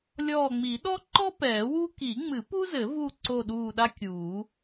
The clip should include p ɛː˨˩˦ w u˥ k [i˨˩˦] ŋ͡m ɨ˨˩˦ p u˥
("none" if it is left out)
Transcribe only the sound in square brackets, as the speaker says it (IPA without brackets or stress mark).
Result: i˨˩˦